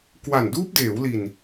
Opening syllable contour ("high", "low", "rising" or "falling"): low